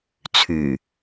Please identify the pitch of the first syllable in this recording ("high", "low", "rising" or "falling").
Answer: low